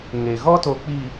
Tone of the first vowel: low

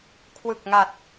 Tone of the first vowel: low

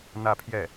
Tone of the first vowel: falling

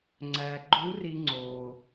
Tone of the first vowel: low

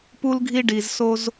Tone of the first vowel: high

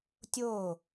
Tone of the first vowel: falling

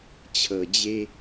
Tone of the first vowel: low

